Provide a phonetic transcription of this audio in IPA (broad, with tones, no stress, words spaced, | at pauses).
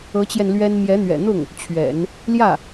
ɤ˧˥t͡ɕjɛ˧n lɥɛ˥n mjɛ˧˥n̪ɥɛ̰˨˩n̪ʊ˥˩ŋ | t͡ɕʰɥɛ̰˨˩˦n | ljä˥˩